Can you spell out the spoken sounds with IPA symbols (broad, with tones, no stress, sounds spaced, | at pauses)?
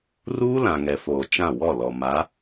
r uː˦ l ã˨ ŋ ɛ˨ f oː˨ t͡ʃ ã˦˨ w ɔ˦˨ l ɔ˨ m a˨˦